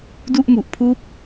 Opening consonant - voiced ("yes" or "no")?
yes